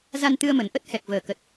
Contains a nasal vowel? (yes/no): no